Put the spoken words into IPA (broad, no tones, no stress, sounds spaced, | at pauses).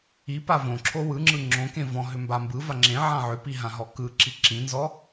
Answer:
i p a v õ ǁʰ o w ɯ ŋ͡ǁ ɯ ŋ͡ǁ õ k ẽ v ɔ̃ ɦ ʏ m b a m b ɯ v a ŋ͡ǁ ẽ ʕ ã ʕ ʏ p i ɦ ã ɦ ɔ k ɯ ǁ i ǁ ĩ n z ɔ